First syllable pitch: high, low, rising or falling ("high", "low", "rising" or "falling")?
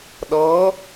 rising